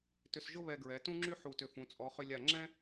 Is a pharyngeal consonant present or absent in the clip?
present